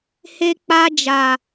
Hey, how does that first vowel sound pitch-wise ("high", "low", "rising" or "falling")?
high